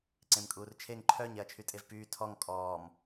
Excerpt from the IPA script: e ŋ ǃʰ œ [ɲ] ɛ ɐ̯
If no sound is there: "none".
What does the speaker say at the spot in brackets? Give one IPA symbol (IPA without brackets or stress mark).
ɲ